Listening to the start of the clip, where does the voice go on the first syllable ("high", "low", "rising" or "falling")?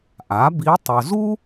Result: rising